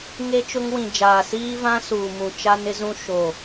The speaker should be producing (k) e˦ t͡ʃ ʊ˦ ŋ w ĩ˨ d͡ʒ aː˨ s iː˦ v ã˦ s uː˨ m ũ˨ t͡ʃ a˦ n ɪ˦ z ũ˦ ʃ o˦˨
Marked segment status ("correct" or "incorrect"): incorrect